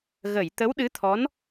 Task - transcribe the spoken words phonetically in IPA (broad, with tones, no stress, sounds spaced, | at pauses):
ɣ ə˨˩˨ j t̪ ə˧˥ w ɗ ɨ˧˥ t̪ʰ ɔ˧˥ n